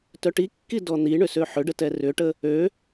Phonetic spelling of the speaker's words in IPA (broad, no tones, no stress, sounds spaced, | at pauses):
t œ ʈ i kː i d ɔ n̪ i ɳ ʏ s ø ħ ʏ ɖ ə t ɛ r ʏ ʈ ə | ø